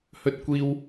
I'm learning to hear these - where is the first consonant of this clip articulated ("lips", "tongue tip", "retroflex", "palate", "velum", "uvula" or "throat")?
throat